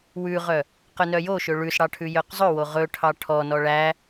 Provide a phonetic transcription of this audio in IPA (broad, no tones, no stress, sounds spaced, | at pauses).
w ʉ ʁ œ | q œ n œ j o ʃ ø ɭ ʉ s ɽ ɑ ʈʰ ʉ j œ q zˤ ɵ w o ʁ ɵ ʈʰ ɑ ʈʰ ɔ n ɔ ɭ æ